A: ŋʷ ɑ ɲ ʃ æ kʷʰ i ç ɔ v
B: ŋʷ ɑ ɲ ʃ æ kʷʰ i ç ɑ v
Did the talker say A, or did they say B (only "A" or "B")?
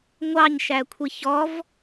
A